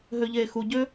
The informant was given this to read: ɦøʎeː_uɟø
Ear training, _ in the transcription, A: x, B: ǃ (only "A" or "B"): A